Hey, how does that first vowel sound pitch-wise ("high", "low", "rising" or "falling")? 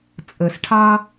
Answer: low